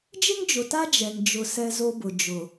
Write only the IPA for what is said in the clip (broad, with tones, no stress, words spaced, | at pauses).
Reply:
d͡ʒɪ˦ŋd͡ʒʊ˨ta˦ d͡ʒɛ˨ŋ d͡ʒʊ˨ sɛ˦zo˦bʊ˨ d͡ʒʊ˨